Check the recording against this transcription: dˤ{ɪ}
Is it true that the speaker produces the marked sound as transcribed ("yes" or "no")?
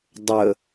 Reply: no